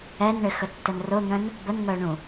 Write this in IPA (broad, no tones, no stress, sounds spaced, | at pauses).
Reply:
ɛ n ɳ ɪ x ə tː ə n r ʊ n̪ œ̃ n | b ə n ŋ œ ɳ ũ